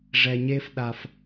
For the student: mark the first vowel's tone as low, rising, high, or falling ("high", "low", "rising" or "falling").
low